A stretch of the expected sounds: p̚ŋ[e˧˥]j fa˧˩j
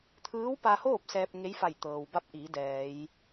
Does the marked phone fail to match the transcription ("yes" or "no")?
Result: no